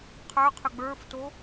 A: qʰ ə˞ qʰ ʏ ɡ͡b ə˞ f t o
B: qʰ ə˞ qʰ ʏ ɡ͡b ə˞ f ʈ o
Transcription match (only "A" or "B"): A